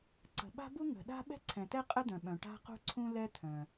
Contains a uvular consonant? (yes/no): yes